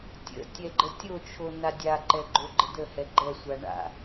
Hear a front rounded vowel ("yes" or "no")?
no